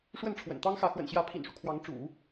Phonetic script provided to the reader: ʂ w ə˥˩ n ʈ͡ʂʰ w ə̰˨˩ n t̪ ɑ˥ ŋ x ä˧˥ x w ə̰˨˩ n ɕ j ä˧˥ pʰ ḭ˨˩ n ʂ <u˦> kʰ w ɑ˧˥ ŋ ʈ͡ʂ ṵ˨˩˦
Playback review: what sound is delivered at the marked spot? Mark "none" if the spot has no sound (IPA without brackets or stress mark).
u˦